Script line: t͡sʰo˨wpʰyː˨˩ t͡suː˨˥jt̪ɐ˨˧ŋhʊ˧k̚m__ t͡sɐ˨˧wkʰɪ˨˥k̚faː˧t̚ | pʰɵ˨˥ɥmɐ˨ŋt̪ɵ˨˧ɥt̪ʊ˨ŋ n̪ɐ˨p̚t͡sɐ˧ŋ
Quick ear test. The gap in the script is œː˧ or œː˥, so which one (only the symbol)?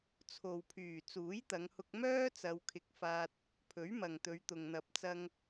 œː˥